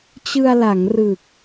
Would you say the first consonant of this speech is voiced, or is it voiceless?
voiceless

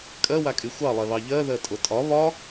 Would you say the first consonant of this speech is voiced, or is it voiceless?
voiceless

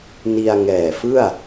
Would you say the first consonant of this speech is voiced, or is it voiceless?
voiced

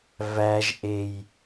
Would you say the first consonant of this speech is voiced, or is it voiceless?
voiced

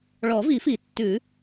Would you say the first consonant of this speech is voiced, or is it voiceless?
voiced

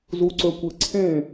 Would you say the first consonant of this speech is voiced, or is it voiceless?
voiced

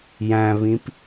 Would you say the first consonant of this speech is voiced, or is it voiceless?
voiced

